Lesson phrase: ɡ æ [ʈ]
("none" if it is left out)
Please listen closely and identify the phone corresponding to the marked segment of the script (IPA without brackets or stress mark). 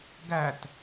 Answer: t